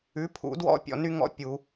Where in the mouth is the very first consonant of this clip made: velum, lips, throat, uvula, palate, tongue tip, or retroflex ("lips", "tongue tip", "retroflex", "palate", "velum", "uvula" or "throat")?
lips